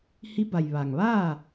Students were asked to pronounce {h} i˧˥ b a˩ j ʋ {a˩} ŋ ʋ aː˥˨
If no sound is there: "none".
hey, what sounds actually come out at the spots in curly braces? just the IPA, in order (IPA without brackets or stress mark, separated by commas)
h, a˩